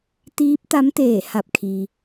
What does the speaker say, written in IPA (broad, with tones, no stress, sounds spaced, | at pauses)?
t̪ iː˧˥ p̚ t̪ a˧˥ m t̪ eː˧˩ h a˧˩ p̚ kʰ i˩